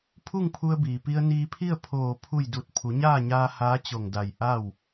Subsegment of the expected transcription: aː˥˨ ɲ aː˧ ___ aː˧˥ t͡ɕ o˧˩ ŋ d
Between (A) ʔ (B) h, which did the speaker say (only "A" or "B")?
B